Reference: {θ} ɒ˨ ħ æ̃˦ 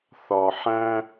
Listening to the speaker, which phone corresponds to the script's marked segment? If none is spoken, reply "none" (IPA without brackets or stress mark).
θ